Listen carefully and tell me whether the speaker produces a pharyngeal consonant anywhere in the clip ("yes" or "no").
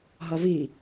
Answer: no